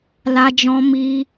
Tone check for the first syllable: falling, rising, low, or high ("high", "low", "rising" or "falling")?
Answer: high